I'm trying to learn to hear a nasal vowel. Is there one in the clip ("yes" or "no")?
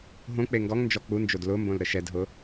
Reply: yes